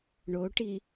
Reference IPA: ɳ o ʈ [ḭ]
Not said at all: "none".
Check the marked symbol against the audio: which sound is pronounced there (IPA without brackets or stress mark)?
i